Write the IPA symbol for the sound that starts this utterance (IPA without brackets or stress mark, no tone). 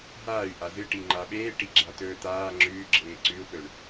ɦ